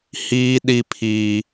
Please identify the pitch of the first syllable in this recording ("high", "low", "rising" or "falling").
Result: high